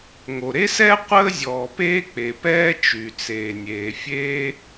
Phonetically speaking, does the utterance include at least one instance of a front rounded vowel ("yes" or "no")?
yes